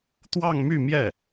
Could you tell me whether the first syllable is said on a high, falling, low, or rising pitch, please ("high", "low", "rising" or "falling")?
falling